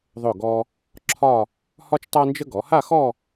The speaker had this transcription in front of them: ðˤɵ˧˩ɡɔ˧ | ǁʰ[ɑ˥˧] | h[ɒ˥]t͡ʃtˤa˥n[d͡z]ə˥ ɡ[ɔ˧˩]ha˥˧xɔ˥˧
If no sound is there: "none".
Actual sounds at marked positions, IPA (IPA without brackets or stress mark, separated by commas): ɒ˥˧, ɒ˥, d͡ʒ, ɔ˩˧